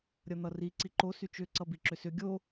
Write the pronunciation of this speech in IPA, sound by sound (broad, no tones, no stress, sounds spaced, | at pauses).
ɾʲ ʌ n̪ ʌ r i ǀ i ǃ o s y t͡ʃ ʏ ǀ ʌ b i ǁ ʏ s ʏ ɡʲ o